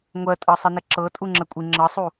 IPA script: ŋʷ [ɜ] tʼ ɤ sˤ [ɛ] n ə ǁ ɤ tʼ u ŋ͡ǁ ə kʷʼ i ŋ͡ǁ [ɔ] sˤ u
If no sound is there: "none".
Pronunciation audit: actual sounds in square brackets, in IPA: ɜ, ə, ɤ

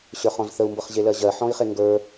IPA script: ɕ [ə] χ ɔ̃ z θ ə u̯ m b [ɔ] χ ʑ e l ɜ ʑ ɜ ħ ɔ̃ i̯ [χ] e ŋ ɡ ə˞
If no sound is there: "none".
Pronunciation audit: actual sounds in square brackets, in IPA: ə˞, ɤ, χ

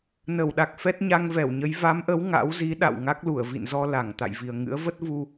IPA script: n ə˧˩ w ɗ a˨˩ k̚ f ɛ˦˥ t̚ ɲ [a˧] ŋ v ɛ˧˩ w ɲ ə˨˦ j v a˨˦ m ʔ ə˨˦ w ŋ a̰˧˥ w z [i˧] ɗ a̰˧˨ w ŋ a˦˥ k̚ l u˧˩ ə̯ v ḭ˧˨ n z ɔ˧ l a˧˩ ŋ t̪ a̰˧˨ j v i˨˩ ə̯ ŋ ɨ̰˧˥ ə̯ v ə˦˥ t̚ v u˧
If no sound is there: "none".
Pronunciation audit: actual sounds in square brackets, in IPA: a˧, i˨˦

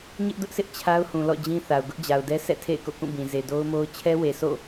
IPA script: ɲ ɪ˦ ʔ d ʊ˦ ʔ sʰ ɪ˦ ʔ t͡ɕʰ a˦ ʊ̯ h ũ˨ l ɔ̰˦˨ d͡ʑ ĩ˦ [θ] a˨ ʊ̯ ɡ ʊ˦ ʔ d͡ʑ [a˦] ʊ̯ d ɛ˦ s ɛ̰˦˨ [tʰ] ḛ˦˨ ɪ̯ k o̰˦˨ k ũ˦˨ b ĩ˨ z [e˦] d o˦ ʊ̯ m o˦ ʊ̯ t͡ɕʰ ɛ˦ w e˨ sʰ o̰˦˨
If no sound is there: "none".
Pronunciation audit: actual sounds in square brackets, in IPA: θ, a˨, tʰ, e˨

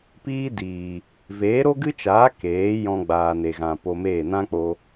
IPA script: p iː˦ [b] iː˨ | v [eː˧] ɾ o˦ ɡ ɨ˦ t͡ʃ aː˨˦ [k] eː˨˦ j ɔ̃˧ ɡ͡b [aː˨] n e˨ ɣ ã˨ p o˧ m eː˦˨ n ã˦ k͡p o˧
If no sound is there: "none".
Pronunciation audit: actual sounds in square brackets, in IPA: d, eː˨˦, k, aː˨

